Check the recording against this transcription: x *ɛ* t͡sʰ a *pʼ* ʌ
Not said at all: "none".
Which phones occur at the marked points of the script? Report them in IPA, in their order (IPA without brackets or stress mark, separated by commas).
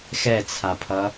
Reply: ɛ, pʰ